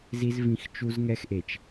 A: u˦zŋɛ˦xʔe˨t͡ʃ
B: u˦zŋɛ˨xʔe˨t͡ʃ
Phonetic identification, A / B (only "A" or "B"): A